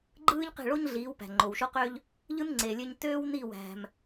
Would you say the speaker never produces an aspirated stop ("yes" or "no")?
yes